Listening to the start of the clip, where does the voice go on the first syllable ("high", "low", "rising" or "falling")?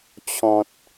low